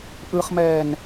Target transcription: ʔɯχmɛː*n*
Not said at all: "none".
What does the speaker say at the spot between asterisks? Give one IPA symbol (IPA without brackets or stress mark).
n